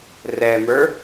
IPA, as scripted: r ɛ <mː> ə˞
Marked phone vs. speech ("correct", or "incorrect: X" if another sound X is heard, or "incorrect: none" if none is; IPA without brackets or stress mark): incorrect: m